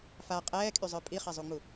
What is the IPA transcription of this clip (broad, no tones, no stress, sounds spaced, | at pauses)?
f a qʼ ɛː kʼ y zˤ œ pʼ i χ ɛ zˤ u ŋ͡m u